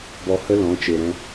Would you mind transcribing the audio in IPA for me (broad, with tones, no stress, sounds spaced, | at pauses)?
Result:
b ɔ˧ h ə˦ l ɔ̃˨˦ t͡ʃ e˨ ɾ ɛ̃˧